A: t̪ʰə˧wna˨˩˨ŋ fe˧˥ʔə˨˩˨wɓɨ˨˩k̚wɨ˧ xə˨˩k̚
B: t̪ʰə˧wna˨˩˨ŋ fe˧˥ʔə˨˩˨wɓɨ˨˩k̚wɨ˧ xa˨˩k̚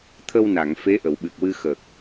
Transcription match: A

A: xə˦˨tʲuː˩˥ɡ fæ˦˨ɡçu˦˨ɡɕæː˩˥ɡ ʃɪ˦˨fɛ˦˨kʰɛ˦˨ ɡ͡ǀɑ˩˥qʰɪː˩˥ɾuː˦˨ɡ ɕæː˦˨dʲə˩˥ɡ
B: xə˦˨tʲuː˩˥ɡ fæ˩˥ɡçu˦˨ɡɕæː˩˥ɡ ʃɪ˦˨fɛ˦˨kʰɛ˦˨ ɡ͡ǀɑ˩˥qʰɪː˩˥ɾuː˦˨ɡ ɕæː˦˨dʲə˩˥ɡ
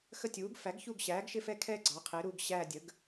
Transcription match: B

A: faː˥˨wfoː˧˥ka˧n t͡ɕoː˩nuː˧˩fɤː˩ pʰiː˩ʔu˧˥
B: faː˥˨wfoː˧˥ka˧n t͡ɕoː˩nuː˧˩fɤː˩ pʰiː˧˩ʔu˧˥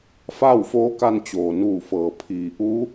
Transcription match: A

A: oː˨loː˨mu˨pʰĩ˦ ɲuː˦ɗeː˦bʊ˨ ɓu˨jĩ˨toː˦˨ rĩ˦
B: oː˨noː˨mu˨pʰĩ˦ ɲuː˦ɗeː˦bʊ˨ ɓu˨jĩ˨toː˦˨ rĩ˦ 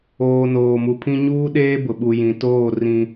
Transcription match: B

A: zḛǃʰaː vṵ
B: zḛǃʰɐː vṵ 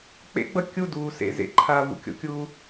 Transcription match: A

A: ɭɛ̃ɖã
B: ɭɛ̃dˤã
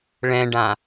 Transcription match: A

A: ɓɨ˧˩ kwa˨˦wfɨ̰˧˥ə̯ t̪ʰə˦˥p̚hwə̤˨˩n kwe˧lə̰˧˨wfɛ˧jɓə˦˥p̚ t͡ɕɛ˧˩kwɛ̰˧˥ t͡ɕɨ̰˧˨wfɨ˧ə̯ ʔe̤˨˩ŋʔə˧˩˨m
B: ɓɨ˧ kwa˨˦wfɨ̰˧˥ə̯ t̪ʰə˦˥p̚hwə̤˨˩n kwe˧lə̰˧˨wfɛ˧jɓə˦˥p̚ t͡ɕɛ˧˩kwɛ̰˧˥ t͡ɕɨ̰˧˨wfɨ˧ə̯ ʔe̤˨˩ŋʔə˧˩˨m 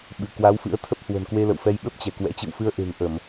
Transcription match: A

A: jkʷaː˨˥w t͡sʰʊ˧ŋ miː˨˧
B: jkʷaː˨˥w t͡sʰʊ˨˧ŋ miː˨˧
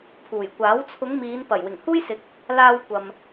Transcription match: B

